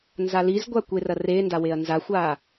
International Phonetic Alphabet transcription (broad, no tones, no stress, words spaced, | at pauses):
nzalizɡʷa kʷerɐrenda weɐ̯nzaxʷa